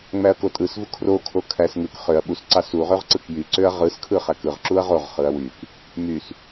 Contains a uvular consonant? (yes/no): yes